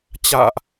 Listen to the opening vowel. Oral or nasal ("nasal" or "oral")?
oral